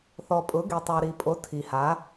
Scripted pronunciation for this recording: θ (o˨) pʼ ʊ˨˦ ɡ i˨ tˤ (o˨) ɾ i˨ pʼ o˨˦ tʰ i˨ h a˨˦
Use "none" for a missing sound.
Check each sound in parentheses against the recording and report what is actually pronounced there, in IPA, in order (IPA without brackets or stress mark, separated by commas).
ɔ˨, o˨